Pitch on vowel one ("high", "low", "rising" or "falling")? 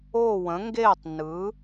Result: falling